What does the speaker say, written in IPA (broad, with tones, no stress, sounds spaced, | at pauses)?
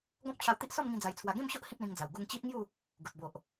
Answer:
ɡ ɔ̃˦ p̚ t͡ɕʰ a˧ w t̪ i˦ ʔ s ɔ˥˧ m ŋ ĩ˧ d͡z a˧ j t͡sʰ w a˧ ɡ ẽ˥˧ m ɕ o˦ ʔ h ĩ˦ p̚ l ĩ˧ ŋ d͡z a˨˩ w ɡ u˧ ŋ t͡ɕ i˦ ʔ ŋ j u˥˧ | ɡ u˨ t̚ b o˨ ʔ